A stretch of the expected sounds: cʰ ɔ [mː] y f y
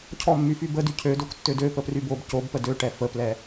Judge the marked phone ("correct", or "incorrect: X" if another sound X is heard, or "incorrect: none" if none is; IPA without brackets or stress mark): correct